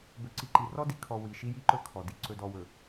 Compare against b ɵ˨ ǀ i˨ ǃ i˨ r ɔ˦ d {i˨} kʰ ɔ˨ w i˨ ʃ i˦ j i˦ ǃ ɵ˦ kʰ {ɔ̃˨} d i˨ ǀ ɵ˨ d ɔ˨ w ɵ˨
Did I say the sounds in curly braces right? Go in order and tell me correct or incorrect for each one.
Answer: correct, incorrect: ɔ˨

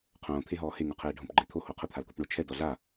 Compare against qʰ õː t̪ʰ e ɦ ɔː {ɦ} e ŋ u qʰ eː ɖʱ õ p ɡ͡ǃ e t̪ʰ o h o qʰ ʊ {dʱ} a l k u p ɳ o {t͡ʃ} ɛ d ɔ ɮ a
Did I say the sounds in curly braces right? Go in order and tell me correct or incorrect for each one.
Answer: incorrect: h, incorrect: t̪ʰ, incorrect: t͡ʃʰ

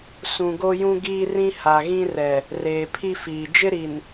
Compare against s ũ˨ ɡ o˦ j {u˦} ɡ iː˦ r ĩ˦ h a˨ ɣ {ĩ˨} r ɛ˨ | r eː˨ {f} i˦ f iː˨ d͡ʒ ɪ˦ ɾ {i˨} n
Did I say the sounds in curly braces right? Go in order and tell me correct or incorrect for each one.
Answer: incorrect: ũ˦, incorrect: ĩ˦, incorrect: pʰ, correct

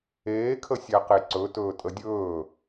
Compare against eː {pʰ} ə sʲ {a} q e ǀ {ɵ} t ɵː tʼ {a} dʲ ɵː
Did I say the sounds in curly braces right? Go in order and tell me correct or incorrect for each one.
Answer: incorrect: kʰ, incorrect: æ, correct, incorrect: ə

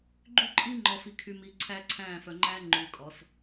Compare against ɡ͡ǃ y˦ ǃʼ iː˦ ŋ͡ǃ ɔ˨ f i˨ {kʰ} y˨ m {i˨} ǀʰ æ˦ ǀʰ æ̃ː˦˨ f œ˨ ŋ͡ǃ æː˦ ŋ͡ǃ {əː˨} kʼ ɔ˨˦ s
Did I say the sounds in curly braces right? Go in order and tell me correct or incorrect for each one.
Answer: correct, correct, incorrect: ʉː˨

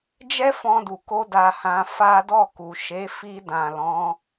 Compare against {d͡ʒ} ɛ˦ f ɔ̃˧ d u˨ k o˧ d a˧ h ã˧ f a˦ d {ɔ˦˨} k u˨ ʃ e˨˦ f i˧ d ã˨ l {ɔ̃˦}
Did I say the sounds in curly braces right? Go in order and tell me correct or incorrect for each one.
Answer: correct, correct, incorrect: ɔ̃˨˦

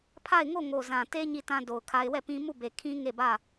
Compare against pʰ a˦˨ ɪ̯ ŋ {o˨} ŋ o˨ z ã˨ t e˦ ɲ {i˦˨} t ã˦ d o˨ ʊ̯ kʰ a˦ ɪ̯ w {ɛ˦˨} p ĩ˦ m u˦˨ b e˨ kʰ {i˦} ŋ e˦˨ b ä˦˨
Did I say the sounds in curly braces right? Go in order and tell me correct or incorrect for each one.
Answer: incorrect: o˦˨, correct, correct, incorrect: ĩ˦

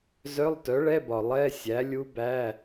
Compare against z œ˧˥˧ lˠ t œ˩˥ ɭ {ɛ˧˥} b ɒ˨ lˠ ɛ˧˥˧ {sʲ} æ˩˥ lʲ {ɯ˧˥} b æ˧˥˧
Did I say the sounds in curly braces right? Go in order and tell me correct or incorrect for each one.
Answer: incorrect: ɛ˧˥˧, correct, incorrect: u˧˥

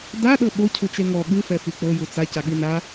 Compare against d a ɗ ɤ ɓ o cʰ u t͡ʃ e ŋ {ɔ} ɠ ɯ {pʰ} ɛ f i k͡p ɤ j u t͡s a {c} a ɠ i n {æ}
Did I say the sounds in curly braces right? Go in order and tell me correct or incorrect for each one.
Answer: correct, incorrect: f, correct, incorrect: a

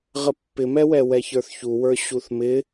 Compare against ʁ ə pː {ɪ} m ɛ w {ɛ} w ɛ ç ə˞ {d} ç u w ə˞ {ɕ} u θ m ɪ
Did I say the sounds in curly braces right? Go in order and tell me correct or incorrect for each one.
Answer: correct, correct, incorrect: θ, correct

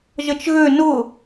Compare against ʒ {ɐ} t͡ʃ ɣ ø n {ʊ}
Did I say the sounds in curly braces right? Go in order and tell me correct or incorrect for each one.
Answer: incorrect: ə, correct

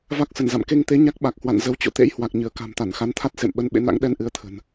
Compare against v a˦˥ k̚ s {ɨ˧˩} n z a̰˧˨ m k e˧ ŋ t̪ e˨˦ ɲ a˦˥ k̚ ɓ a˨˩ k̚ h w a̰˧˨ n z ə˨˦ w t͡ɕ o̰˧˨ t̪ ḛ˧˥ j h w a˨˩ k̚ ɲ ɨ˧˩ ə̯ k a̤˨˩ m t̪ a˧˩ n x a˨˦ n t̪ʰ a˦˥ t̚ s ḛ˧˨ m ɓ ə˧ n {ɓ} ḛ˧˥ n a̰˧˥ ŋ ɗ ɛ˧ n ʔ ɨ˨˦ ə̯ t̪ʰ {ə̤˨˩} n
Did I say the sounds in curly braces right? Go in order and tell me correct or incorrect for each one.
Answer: incorrect: ə˧˩, correct, correct

